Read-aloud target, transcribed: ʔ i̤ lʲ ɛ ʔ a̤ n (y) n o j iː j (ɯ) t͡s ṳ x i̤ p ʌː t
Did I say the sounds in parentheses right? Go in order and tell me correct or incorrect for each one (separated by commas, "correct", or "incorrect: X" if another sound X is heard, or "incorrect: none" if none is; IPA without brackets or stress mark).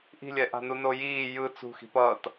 incorrect: u, correct